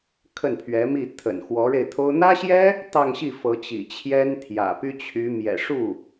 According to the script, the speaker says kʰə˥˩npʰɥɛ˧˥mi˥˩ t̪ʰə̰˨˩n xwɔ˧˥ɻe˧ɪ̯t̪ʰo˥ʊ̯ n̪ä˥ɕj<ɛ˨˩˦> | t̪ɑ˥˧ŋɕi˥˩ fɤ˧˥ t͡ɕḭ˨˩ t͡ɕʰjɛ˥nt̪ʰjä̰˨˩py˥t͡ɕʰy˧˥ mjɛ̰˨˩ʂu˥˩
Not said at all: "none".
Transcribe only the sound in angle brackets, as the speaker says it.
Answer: ɛ˥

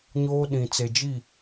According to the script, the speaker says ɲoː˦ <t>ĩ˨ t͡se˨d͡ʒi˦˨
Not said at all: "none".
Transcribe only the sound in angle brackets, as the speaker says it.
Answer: ɗ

